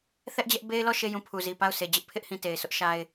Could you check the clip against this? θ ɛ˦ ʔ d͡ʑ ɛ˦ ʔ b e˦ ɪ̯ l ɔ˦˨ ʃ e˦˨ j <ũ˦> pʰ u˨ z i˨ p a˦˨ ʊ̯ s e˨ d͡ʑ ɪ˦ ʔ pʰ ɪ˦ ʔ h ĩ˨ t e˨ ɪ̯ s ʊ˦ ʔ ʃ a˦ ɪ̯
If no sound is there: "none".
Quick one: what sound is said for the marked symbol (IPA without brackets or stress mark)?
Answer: ũ˦˨